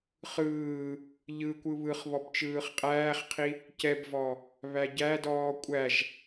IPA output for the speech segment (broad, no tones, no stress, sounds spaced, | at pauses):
χ ɯː | ʎ ɯ kʷ ɯ β ɯ χ β ɔ b t͡ʃ ɯː χ qʼ æː χ qʰ i | c ɛ b v ɔ | β æ ɟ æ d ɔː kʷʼ æ ʒ